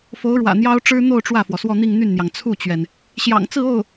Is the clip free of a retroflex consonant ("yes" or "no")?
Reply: no